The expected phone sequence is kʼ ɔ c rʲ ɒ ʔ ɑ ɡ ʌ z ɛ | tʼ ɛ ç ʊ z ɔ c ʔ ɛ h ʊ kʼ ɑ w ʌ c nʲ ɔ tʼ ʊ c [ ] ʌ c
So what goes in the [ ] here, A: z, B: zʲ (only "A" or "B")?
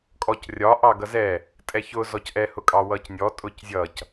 B